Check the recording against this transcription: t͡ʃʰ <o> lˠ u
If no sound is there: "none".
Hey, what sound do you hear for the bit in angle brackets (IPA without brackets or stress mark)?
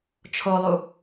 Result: o